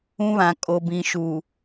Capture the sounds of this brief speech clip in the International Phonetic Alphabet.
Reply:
ũ˦ β ã˨ kʼ o˨ b ĩ˨ ʃ u˨

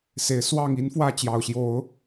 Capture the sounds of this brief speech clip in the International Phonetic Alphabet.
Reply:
s e˨˦ ɪ̯ s w ɑ˥˨ ŋ i˦ n f w ä˥˨ t͡ɕ j ɑ˨˩ ʊ̯ ɕ j o˨˦ ʊ̯

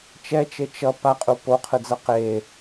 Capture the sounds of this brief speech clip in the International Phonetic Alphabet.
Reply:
t͡ʃ ɛ t͡ʃ e t͡ʃ ʌ p a qʼ u p o qʰ ɯ d͡z ʌ q e

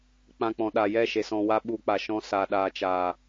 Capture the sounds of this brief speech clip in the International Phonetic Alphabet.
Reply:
k͡p ã˧ k͡p ɔ̃˨ ɗ a˨ j ɛ˦˨ ʃ e˧ s ɔ̃˧ w a˦ ɓ u˧ k͡p a˨ ʃ ɔ̃˧ s a˨ ɗ aː˨ t͡ʃ aː˨

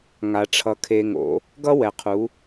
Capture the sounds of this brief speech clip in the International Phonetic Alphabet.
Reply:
ŋ a˨ ʈ͡ʂʰ ʌ˨ kʰ e˨ ŋ o̰˨˦ | ɡ ʌ˦ w ɛ˨ qʰ u˨˦

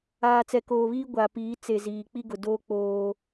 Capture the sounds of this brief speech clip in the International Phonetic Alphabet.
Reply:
aː˨ t͡s ɛ˨ k oː˨ β iː˦ ɡʷ a˨ p iː˨˦ t͡s e˨ z iː˨ k͡p i˦ ɡ ʊ˨ d oː˦ k͡p oː˦

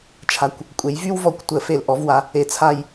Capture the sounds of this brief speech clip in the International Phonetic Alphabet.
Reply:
t͡ʃʰ a˨ kʷ | kʷʼ e˨˦ j v y˦ w v ɔ˨˩˦ kʷ tʷ ə˨˩˦ f e˨ l ʔ ɔ˨˦ v w a˨˦ | e˨ t͡sʰ a˦˨ j

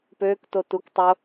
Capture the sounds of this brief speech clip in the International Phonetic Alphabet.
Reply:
p øː k t o t u k tˤ o

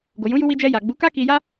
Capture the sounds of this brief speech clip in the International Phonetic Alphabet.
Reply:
ɡ o˨ j ũ˨˦ j u˧ w i˧ d͡ʒ ɛ˧ j a˨ ɡ͡b u˨˦ k a˦ k i˧ j a˦

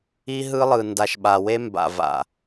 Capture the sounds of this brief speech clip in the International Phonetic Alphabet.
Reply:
i˦ ɦ ɯ˦ lˠ ɯ˨ n d a˨ ʃ ɓ a˨ w e˦ m b a̰˨ v a̰˨

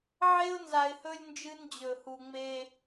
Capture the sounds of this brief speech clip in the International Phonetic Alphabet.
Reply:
ʕ e˦ ʊ̯ n z a˨ ɪ̯ h ɵ˦ lʲ n d͡ʒ ɨ˦ n d͡ʑ ɵ˨ h u˨ ŋ͡m e˦

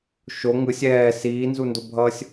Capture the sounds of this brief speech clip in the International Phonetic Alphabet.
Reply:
ʃ o ŋ ɯ sʲ ɛː s iː n z u n d o bʱ ʌː sʲ

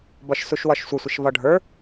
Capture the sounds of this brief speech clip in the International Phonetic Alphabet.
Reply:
b ɒ ʃ s u ʃ w ɒ ʃ sʷ ɪ sʷ ɪ ʃ v ɒ ɖʱ ə˞

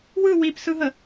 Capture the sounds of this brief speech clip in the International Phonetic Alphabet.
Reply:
w ɯ w i p s ɯ ɦ ə

